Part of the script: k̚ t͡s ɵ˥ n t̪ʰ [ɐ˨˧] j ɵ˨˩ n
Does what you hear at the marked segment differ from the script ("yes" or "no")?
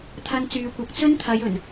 no